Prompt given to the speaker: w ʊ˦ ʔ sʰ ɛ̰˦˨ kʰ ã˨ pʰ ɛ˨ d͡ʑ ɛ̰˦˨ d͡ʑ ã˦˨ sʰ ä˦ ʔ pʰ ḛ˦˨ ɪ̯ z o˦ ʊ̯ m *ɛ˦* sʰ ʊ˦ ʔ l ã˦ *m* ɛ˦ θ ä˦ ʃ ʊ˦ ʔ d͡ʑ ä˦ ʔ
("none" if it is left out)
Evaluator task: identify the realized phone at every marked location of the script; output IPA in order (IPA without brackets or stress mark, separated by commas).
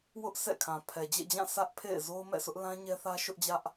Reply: ɛ̰˦˨, ɲ